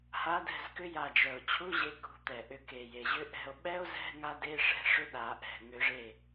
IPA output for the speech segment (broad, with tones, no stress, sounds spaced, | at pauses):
h a˨˦ d ɛ̤˧˩ z k ʏ˦˥ j a˧˩ d͡ʒ œ˩ o̯ t͡ɕʰ u˧˥˧ ʑ e˨˦ k ṳ˨˦ t̪ ɛ˩ ʔ ʏ˧˩ k e˩ j e˩ ʑ ʏ˦˥ ʔ ɛ̤˧˩ o̯ ɓ ɛ˦˥ o̯ z ɛ̤˧˥˧ ŋ a˦˥ d e˧˥˧ ʂ ɛ̤˧˥˧ ʂ ʏ˧˥˧ ɗ a˨˩˦ ʔ ɛ̤˩ ŋ ʏ˨˩˦ ʐ e˧˩